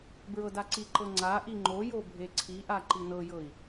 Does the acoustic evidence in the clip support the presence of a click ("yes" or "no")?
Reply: yes